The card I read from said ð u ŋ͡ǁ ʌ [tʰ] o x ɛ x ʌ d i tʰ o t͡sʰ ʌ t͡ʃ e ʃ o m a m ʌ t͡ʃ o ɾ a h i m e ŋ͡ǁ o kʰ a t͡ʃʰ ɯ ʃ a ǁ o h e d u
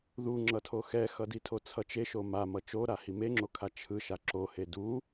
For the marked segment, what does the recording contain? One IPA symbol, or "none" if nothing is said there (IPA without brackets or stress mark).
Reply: tʰ